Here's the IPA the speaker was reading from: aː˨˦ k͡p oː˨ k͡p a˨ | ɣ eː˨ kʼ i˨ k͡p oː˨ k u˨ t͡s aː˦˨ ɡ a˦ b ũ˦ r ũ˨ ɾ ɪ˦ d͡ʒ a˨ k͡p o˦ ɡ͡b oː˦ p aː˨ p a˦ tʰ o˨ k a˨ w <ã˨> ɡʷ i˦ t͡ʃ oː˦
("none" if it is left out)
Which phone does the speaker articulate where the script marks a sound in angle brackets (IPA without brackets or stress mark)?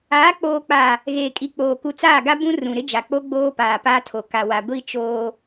a˨